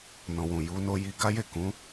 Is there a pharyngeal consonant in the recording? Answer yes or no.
no